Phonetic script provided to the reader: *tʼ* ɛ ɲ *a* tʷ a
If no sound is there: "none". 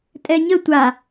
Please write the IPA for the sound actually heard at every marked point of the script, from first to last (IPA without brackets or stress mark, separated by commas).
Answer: tʼ, ə